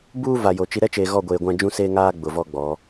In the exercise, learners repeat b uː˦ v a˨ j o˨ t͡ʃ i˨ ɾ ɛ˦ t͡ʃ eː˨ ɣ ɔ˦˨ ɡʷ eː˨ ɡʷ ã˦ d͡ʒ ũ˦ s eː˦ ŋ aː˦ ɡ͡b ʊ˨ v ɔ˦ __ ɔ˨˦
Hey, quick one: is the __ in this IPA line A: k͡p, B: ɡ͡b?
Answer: B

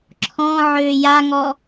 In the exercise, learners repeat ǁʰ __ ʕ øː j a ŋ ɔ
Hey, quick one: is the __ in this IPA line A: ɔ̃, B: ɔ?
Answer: A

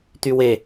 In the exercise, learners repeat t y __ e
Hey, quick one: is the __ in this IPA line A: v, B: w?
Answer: B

